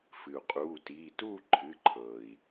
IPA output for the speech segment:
fɨ˩u̯qʼuː˩˧˩tiː˩˧˩ tuː˥˨ǃʰɨ˩˧˩ǃʰɤː˩i̯

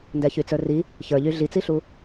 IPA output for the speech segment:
ndɛçyt͡sə˞ri | çə˞ʎy ɮit͡siɬu

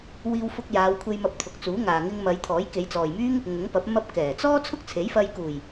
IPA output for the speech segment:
wiː˧wfʊ˧k̚ jaː˨˧wkʷʰe˧j mɐ˧p̚t̪ʰʊ˨k̚t͡suː˨˥ŋaː˨ ŋɪ˧ŋmɐ˨˧j t̪ʰɔː˨˥jke˨˧jt͡sɔː˨jmyː˥ŋ | ŋʊ˨˥ŋpɐ˨˥p̚ mɐ˧p̚kɛː˨˩t͡sɔː˥ t͡sʰʊ˥k̚t͡sʰe˨˥jfɐ˧j kuː˨˩j

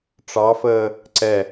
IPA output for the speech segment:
ʈ͡ʂɑfəː | ǀɛ

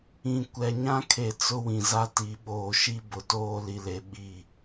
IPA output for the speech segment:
ĩ˨ kʷɛ˨ɲã˦kʰe˨ t͡sʊ˦wĩ˨za˦ti˨˦ ɓoː˨ʃi˦ bʊ˨toː˦li˨le˨ ɓi˦˨

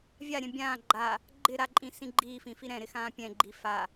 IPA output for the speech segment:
vʲaɾʲɛ̃ bʲãː ɡ͡ǃa | ɡ͡ǃɪ ɾaǃʼĩsĩ ɡ͡ǃiːfĩfi ɾɛ̃ɾɪxãː pʲɛ̃ɡ͡ǃi fa

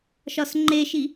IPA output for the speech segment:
ʃɒsŋ͡ǃeʃi

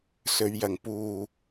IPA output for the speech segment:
sɵ˨˧ɥjɐ˨ŋ puː˨

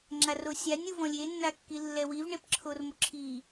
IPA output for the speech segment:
ŋ͡ǁarosʲanʲ uvɔ̃lʲe nːakːilːɛwiv ɳepǁʰormoǁʰi

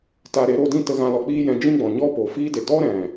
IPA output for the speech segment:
ta˧ɾe˨˦ ɾo˧dĩ˦˨ tə˧ɣã˧lɔ˨ k͡piː˦jɛ̃˧ d͡ʒĩ˦ɡ͡bɔ̃˨ ɲɔ˦po˨fiː˦de˨ dɔ˦ɾɛ̃˨

